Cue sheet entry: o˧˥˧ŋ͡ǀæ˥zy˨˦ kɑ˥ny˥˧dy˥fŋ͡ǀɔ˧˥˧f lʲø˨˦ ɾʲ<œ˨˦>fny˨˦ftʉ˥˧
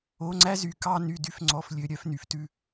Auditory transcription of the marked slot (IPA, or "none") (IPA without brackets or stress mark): œ˨˦